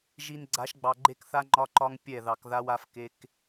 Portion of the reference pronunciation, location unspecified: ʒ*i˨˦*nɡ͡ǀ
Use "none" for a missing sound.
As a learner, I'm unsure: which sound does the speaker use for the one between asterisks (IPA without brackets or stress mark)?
i˨